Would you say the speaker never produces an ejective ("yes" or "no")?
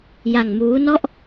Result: yes